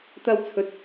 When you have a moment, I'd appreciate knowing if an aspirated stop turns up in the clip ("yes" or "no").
yes